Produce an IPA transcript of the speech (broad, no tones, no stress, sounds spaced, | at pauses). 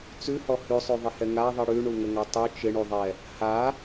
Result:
t͡s ʉ h ɔ h ʉ sˤ ʉ ðˤ ɪ h ɛ ŋ a ðˤ i ɽ ʉ ɳ u ŋ ə ŋ a tˤ u t͡ʃ ɪ ɳ u ðˤ ɛ | h a